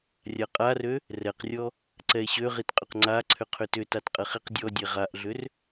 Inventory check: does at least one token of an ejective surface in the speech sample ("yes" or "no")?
yes